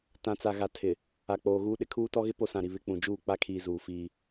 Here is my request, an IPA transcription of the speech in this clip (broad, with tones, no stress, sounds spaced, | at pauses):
t ã˨ t͡s a˨ ɣ a˨ tʰ ɪ˨ | a˨ k͡p oː˨ ɣ uː˦ ɗ ɪ˨ kʰ uː˦ t ɔ˦ ɣ ɪ˦ p o˦ s ã˨ ɾ i˨ β ɪ˦ k͡p ũ˨ d͡ʒ uː˦˨ k͡p a˦ kʰ iː˨ z uː˨ f iː˦